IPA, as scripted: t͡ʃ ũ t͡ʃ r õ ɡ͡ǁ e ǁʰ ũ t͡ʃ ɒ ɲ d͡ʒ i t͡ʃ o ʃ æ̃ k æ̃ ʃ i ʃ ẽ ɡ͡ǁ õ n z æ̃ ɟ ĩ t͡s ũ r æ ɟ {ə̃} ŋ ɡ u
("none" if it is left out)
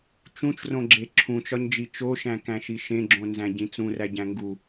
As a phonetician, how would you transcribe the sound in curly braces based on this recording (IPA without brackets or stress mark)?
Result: æ̃